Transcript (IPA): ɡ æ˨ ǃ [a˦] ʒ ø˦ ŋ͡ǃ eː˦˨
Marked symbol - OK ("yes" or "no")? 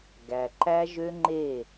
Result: no